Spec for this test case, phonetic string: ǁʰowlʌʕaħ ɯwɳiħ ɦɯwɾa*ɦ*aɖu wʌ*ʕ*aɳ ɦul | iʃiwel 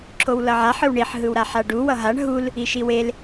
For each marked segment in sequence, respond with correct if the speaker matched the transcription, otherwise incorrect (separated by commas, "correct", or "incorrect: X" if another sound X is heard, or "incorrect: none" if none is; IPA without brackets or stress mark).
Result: incorrect: ħ, incorrect: ɦ